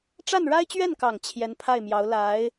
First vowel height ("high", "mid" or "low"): low